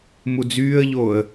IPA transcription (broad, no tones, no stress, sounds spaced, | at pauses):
m u d͡z yː ə̯ ʎ oː ə̯